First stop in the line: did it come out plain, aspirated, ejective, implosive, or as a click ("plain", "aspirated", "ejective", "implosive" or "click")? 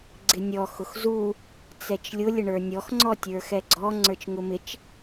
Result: click